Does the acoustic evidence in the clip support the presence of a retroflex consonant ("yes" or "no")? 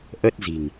no